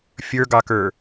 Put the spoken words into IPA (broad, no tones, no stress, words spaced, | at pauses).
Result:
fʲə˞ɡɑkə˞